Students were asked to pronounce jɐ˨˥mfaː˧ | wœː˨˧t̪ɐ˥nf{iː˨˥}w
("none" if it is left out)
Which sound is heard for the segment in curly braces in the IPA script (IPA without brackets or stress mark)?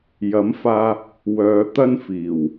iː˨˩